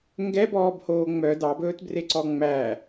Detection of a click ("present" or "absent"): present